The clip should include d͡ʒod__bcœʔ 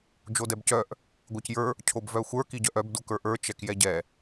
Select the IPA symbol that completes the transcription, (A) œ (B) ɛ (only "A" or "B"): B